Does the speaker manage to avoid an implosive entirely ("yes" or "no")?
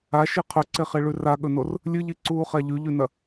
no